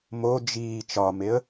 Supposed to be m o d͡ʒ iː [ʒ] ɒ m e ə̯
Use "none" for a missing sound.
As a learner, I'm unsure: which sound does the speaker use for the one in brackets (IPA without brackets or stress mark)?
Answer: t͡ʃ